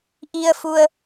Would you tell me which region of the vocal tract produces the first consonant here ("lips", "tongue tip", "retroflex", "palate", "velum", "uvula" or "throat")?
throat